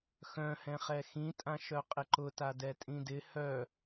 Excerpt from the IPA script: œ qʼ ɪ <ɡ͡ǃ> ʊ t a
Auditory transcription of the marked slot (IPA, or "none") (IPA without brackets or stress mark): ǃ